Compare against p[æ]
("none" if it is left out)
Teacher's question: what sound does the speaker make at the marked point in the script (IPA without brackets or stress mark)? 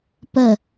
ə